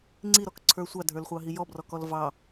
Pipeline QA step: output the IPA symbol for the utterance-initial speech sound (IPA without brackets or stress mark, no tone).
ŋ͡ǀ